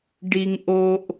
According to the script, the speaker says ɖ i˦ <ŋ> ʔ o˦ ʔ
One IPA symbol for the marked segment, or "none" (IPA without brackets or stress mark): ŋ